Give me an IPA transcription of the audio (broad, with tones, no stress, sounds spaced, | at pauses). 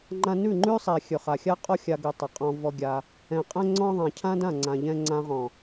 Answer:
ŋ͡ǃ ã˧ n ʉ˦˨ ŋ͡ǃ ʉ˦ sˤ ɛ˨ xʲ ɵ˨ χ a˨ xʲ a˦ qʼ ɔ˦ xʲ a˧ ɡ ʉ˨ tˤ ɛ˨ qʼ ɔ̃˧ v ɔ˧ ɡʲ a˧ | ɛ̃˨ qʼ ɛ̃˦ ŋ͡ǀ ɔ̃˦ ðˤ ã˨ cʰ ã˦ d ã˦˨ ŋ͡ǀ ã˨ ʎ ɛ̃˧ ŋ͡ǀ ã˧ ʁ ɔ̃˨